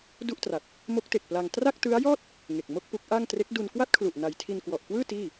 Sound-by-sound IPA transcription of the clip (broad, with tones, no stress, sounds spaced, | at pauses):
d u˥˩ ʔ t r a˨˩ t̚ | m o˦˥ k̚ t e˨˩ k̚ p l a˧ ŋ t r a˥˩ k̚ t ɯ˦˥ a̯ j ɔː˥˩ t̚ | ŋ e˨˩ k̚ m o˥˩ k̚ p u˦˥ k̚ ʔ a˥˩ ŋ t r e˦˥ k̚ d u˧ n k w a˥˩ t̚ kʰ l u˨˩ ʔ n a˧ j tʰ i˧ n k w ɔ˨˩ ʔ k w ɯː˥˩ t iː˥˩